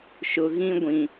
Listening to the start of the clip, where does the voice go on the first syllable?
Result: low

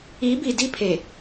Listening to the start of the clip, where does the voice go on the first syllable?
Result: rising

